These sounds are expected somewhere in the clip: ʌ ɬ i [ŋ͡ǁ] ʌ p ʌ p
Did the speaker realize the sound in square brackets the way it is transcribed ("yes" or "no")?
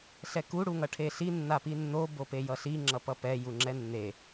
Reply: yes